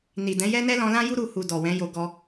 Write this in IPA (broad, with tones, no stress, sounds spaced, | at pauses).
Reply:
n i˨ d ɛ̃˨˦ j ɛ˦ n ɛ˦ l ɔ̃˦ l ã˦ j u˦ ɾ u˧ h u˨ d ɔ˨ w ɛ̃˨˦ j o˧ ɡ ɔ˧